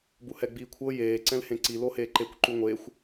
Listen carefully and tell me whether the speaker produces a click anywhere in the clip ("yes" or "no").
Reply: yes